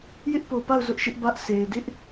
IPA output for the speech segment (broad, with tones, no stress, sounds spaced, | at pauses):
j ɪ˦ ʔ p o˨ p a˦˨ ʊ̯ z ʊ˦ ʔ ʃ ɪ˦ ʔ b ä˦ ʔ sʰ e˨ ɪ̯ d ɪ˦ ʔ